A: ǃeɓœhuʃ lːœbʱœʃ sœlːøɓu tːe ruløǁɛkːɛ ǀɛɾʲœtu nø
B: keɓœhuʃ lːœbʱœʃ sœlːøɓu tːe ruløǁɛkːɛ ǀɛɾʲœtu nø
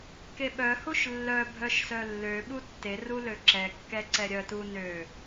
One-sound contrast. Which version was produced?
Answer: B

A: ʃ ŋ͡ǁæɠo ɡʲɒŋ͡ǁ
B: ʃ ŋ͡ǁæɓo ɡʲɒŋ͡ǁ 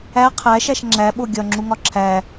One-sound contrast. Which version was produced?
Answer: B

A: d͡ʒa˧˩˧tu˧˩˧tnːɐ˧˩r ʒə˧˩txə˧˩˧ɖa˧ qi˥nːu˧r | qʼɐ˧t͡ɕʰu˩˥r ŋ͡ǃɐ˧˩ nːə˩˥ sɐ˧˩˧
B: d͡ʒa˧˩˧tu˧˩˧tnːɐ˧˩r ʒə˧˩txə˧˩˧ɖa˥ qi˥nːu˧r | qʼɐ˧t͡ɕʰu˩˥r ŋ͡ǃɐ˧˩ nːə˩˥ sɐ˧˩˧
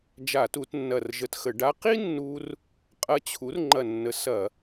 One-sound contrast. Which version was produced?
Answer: B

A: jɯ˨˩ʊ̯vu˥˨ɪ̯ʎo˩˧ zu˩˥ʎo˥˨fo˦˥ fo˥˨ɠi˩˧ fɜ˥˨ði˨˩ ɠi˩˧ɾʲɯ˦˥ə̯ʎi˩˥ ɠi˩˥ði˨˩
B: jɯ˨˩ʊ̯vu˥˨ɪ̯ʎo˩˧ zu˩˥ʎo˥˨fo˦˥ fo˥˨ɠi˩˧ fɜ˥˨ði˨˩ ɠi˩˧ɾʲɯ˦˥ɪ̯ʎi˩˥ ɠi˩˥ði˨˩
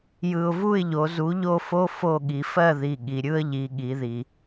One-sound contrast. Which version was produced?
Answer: A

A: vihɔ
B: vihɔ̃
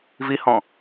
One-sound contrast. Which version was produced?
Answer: B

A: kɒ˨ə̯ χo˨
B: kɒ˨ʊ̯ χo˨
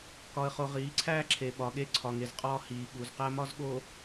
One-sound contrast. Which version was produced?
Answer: A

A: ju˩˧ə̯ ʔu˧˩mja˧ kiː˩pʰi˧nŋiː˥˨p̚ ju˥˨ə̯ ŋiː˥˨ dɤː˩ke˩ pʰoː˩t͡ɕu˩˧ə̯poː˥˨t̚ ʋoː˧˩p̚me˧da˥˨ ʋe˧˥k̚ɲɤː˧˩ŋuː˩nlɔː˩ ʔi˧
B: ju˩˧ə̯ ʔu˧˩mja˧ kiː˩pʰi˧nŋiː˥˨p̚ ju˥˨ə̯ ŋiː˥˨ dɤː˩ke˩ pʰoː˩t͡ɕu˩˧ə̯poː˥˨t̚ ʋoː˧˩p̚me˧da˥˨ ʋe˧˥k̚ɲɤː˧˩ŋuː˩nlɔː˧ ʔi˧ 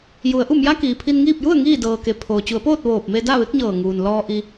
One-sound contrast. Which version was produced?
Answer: B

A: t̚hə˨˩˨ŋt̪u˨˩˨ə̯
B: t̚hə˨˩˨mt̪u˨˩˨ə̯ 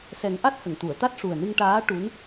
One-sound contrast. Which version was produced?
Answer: A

